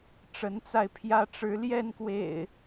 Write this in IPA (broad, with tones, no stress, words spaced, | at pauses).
ʈ͡ʂə˨˦nt͡sa˧ɪ̯pʰjä˦ ʈ͡ʂɻ̩˨˦ljɛ˥˨nkwḛ˨˩ɪ̯